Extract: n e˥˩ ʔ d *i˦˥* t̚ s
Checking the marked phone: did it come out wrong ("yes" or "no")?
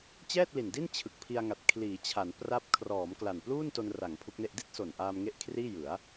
yes